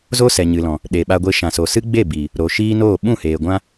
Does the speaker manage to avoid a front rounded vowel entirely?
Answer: yes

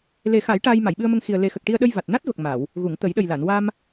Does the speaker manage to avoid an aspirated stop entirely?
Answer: yes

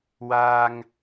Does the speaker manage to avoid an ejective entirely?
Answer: yes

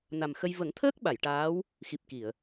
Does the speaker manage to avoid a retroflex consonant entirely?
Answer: no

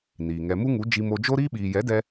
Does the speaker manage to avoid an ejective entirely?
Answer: yes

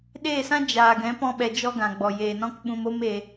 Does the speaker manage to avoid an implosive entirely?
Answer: no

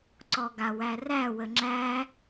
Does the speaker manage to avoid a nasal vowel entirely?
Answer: yes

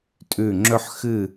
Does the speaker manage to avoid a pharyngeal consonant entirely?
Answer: no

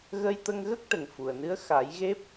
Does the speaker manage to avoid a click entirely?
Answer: yes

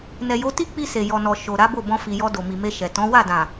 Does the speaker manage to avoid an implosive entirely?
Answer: yes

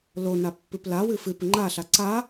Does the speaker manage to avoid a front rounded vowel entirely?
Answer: yes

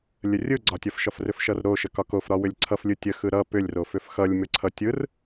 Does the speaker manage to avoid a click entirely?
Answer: no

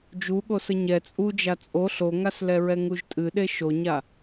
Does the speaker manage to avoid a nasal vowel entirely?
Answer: yes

